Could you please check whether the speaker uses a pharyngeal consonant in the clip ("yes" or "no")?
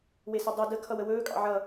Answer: yes